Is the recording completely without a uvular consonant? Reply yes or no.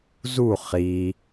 no